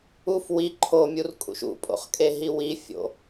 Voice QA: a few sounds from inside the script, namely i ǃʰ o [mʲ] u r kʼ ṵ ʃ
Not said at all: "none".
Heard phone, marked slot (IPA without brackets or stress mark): mʲ